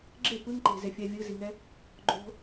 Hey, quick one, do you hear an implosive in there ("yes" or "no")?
no